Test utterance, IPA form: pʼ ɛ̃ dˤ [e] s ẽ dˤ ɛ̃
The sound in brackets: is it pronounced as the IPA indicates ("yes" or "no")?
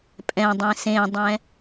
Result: no